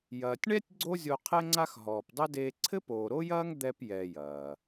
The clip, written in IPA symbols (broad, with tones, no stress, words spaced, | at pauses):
jɐː˨tʲɳɛ˥tʲ ɡ͡ǀo˥ zʲo˦qʰɛ˥ŋ͡ǀa˥x ɦɔː˨pdˤɘ˥deː˦ ǀʰɘ˥poː˨ɾo˥jɐː˥ŋ d̪ɛ˦pjɛ˨ jɐː˩